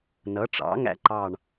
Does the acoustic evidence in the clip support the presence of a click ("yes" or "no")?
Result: yes